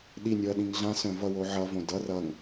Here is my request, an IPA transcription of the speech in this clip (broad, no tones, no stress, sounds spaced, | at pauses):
ɗ i nʲ o ɐ̯ ɗ ĩ ŋ ɮ ã s œ̃ v ʌ w o ʕ ʌ v õ d ʌ r ʌ ŋ